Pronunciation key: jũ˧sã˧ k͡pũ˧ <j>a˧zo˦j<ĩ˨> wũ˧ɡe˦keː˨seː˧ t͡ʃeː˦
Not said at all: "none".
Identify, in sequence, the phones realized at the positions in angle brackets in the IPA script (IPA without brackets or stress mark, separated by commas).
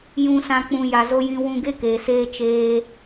j, ĩ˦